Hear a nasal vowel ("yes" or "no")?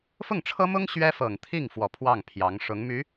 no